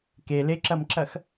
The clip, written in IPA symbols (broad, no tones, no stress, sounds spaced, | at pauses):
k e l e ǁ ɐ m ǁ ɐ x